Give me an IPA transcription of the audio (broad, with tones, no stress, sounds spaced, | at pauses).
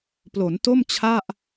p l o˩˦ n t o˥˩ m t͡ɕʰ a˥˩ ʔ